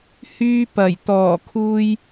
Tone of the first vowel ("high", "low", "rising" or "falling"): high